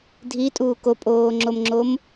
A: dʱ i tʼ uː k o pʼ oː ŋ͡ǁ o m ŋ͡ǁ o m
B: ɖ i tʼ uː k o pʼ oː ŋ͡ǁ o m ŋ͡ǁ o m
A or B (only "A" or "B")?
A